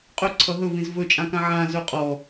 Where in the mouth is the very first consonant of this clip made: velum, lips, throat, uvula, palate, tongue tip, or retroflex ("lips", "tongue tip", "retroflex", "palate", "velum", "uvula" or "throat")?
uvula